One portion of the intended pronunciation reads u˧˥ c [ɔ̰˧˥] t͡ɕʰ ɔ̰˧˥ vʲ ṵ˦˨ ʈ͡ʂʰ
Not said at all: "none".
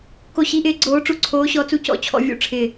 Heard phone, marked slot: ɔ̰˦˨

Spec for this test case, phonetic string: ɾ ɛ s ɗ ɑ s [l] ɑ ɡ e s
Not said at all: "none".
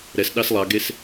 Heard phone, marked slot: lˠ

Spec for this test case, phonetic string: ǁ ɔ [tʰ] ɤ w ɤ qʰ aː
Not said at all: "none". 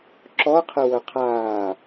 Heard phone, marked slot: qʰ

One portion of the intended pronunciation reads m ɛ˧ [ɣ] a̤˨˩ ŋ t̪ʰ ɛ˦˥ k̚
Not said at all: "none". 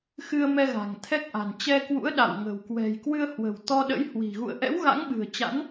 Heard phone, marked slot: ɣ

